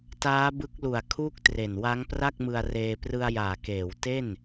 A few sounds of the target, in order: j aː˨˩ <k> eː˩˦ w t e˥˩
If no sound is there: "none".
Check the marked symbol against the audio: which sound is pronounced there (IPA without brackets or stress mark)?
k